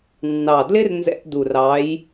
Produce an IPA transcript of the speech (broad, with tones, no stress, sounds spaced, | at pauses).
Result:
nː ɑ˨˩ d l ɪ˦˥ r n z ɛ̰˧˥˧ ʔ d u˨˩ r ɑ˨˦ j